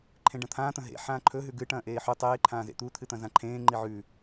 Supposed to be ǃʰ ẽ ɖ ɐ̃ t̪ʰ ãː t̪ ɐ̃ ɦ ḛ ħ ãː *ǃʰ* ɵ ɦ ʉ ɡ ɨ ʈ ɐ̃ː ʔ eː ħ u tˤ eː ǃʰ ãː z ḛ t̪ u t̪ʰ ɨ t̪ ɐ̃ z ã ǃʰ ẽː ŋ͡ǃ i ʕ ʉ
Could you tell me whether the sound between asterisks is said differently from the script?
no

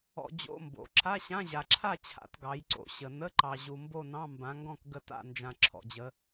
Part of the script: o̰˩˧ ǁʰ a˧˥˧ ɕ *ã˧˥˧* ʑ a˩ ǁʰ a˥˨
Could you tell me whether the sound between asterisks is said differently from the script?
no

